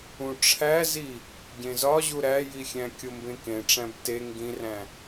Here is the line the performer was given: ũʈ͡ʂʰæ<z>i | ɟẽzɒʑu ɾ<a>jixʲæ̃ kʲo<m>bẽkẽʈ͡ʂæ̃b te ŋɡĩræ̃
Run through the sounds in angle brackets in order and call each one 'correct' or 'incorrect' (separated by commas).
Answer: correct, incorrect, correct